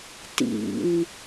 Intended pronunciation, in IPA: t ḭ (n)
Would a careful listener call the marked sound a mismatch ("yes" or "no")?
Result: no